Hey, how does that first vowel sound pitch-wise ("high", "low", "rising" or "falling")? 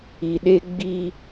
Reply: low